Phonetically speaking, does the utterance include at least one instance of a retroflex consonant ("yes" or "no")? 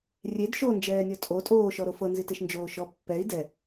no